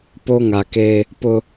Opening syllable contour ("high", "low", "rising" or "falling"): high